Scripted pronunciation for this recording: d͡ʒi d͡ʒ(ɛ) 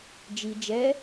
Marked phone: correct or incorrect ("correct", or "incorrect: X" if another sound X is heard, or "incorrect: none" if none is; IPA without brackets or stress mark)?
correct